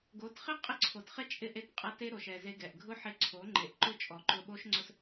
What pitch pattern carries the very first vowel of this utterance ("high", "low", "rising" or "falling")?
rising